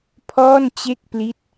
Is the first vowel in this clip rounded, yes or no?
yes